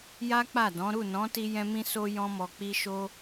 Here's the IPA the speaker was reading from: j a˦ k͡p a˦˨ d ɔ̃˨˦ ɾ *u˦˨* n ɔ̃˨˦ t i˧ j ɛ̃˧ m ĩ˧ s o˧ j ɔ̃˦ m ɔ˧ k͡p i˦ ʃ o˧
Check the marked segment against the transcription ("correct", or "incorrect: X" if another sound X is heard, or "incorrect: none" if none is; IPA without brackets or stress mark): correct